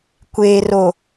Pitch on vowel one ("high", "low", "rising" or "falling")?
low